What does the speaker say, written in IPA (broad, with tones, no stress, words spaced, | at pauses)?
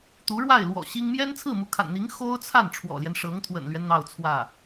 t̪u˧˥ɻwa˥˩ɪ̯lwɔ̰˨˩ ɕi˥ŋ mjɛ˥nt͡sʰɹ̩˥˩mu˧˥kʰa̰˨˩n n̪i˧˥ŋ xo˥ʊ̯t͡sʰa˥˩n ʈ͡ʂʰwɔ̰˨˩ljɛ˦n ʂɤ˧˥ŋt̪ʰwə̰˨˩nlɥɛ˦n n̪ɑ˥˧ʊ̯t͡sʰwä˥˩